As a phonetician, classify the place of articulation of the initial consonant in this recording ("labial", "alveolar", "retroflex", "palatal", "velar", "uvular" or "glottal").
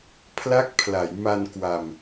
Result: labial